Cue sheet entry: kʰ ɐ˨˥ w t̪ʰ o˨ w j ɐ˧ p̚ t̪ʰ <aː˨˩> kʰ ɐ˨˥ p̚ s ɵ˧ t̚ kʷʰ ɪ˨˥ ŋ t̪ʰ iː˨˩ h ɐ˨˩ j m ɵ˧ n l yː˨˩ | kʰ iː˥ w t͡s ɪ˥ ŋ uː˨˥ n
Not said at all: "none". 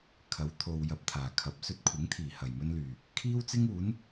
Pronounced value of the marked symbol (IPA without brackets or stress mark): aː˨˩